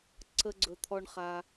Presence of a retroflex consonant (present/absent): present